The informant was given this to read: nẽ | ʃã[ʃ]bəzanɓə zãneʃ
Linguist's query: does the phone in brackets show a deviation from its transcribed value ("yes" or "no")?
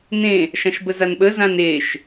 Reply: no